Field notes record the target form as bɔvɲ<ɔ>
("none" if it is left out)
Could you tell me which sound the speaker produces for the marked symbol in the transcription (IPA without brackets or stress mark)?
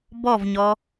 ɔ